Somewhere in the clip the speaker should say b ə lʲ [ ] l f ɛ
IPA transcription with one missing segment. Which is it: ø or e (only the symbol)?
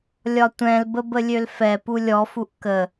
ø